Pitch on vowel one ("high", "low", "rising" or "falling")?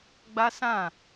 high